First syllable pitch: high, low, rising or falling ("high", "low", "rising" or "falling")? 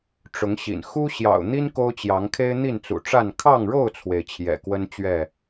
rising